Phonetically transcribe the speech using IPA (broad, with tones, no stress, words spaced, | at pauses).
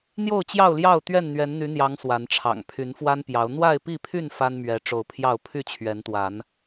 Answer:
n̪jo˥˨ʊ̯t͡ɕjɑ˥˨ʊ̯ljɑ˥˨ʊ̯ t̪ɥɛ˥˨nn̪ɥɛ˨˦nn̪y˨˦n̪jɑ˨˦ŋ swa˨˦nʈ͡ʂʰɑ̰˨˩ŋ pʰy˨˦nfwa˦npjɑ˨˦ʊ̯ n̪wa˥˨ɪ̯pi˥˨pʰy˥˨n fa˦nmɥɛ˨˦ ʈ͡ʂo˨˦ʊ̯pʰjɑ˥˨ʊ̯ pʰy˥˨t͡ɕʰɥɛ˨˦nt̪wa˨˦n